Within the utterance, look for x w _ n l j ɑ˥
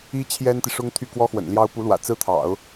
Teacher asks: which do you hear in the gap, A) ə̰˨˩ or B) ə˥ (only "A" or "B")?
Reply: A